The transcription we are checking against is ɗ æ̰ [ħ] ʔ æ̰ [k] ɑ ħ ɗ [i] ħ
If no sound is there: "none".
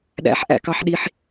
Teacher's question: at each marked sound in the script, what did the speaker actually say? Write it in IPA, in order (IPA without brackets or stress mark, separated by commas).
ħ, k, i